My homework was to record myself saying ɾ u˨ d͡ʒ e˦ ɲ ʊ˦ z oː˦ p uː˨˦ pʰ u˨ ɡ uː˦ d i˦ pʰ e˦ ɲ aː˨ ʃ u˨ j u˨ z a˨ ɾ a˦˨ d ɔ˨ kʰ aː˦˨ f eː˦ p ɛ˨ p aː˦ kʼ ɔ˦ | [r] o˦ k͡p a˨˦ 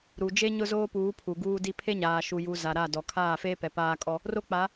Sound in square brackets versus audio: correct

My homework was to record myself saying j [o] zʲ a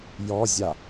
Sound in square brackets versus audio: incorrect: ɔ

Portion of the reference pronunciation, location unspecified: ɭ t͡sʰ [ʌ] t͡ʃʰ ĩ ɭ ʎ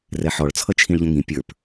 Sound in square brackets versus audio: correct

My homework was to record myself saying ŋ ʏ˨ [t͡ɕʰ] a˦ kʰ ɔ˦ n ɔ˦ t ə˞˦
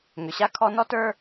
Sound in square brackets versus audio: incorrect: ɕ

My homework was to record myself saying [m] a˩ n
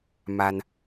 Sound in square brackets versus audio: correct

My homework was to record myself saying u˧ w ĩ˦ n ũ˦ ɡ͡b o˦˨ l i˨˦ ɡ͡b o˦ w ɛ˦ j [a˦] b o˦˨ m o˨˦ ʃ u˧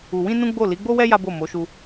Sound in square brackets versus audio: correct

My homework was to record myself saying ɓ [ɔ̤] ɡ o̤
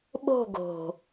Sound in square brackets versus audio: incorrect: o̤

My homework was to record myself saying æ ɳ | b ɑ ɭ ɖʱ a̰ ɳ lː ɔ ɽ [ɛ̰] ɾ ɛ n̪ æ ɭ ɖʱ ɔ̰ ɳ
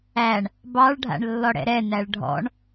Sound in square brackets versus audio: correct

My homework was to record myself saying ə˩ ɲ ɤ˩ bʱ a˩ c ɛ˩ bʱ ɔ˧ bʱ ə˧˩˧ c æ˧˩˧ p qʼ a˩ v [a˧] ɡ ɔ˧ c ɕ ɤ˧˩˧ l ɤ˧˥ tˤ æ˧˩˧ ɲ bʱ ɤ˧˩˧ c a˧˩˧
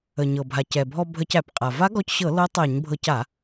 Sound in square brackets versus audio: incorrect: a˧˥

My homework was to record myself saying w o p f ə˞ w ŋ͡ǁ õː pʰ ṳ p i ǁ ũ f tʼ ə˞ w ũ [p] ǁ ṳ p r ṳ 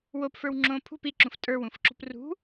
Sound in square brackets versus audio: incorrect: f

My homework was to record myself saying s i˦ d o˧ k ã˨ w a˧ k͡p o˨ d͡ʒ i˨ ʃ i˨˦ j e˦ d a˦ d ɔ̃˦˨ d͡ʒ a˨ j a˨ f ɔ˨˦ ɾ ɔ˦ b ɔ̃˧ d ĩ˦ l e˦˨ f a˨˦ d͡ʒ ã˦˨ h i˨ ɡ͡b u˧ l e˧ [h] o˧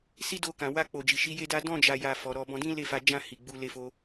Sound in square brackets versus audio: incorrect: f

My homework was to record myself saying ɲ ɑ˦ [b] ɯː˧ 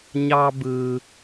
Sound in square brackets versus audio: correct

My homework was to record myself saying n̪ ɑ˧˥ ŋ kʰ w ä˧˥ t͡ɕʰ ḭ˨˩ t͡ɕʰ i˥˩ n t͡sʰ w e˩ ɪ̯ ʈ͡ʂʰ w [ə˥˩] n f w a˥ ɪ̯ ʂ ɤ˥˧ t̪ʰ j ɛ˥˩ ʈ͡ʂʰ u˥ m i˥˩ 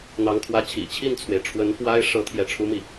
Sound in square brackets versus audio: incorrect: ə˧˥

